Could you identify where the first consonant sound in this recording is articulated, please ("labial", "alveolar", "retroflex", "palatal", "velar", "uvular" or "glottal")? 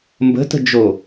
labial